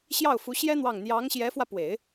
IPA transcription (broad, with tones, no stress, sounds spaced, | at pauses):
ɕ j ɑ˥˩ ʊ̯ f u˧˥ ɕ j ɛ˥ n̪ w ɑ˥˩ ŋ n̪ j ɑ˧˥ ŋ ɕ j ɛ˧˥ f w ä˧ p w e˨˩˦ ɪ̯